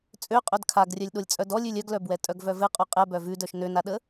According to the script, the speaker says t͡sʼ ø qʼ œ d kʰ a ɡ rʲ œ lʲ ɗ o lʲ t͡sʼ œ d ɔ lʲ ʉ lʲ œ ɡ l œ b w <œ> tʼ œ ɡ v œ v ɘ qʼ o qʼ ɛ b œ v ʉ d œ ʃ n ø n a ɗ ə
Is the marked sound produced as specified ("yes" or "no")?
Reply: no